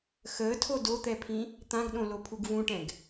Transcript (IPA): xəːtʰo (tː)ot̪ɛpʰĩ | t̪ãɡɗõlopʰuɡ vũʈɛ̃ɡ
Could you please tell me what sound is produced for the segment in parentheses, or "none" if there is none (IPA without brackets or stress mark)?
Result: d